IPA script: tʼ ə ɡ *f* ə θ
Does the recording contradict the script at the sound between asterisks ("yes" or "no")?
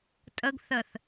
yes